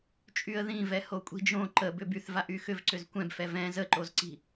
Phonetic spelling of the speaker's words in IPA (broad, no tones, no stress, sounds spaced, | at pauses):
t͡ʃʼ y ə̯ ð ĩ v ɛ h o kʷʼ i̤ d͡ʒ õ ǃ ə b ʏ b y θ v a ʔ y x ʏ v ǀ ʏ z kʷ ɛ̃ b f ɛ v ɛ̃ z ə ǃ o z ǀ i̤